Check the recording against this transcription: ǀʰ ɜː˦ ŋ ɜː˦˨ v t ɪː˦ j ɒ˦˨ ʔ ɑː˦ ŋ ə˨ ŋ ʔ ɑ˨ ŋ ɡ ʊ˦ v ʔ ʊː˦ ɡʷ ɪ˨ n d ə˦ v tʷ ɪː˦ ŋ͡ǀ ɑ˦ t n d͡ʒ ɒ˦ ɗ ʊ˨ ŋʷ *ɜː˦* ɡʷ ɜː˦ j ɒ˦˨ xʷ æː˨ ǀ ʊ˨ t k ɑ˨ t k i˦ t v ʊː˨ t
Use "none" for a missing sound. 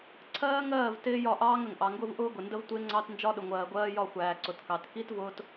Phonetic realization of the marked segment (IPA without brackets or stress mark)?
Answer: ɜː˨